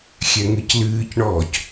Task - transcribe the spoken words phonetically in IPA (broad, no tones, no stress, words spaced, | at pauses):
xʲɛŋɨclɨːcɳɔːc